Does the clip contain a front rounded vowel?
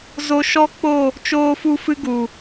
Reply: no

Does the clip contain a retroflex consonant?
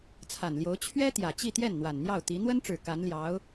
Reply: yes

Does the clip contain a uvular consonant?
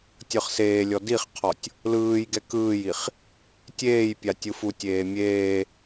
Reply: yes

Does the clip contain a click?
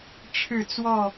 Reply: no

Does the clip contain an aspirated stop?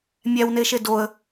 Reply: no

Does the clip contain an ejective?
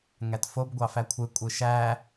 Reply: yes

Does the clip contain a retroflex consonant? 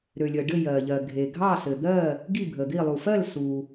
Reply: yes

